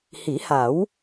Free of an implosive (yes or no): yes